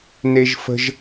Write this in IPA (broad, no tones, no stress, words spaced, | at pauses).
neʒfə̤ʒ